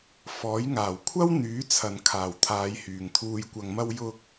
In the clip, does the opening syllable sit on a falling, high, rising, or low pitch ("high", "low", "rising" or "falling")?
rising